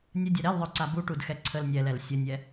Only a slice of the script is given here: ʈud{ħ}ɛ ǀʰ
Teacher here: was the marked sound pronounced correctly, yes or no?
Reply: no